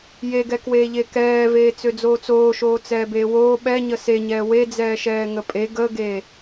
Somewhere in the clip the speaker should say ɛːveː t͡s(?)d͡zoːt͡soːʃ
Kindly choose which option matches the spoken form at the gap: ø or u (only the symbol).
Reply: ø